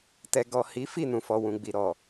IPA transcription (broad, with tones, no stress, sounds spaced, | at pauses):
t ɛ˨ ɡ ɔ˨ h i˨˦ f i˦˨ n ũ˨ f ɔ˨ w ũ˨ ɡ͡b i˨ ɾ ɔ˨